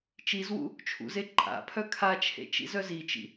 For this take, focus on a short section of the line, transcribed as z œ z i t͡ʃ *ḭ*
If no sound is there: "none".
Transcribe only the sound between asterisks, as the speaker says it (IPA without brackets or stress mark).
ḭ